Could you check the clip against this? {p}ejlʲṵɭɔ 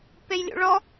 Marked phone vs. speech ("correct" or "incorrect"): correct